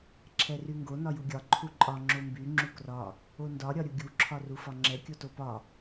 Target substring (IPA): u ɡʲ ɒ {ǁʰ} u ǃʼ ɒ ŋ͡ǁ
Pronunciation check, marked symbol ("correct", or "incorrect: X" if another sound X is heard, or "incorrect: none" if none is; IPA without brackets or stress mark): incorrect: ǃʰ